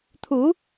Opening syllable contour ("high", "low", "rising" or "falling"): rising